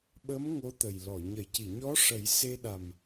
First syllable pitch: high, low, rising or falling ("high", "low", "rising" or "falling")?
rising